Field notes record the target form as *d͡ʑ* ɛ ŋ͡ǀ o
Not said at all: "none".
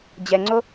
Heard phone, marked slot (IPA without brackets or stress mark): d͡ʑ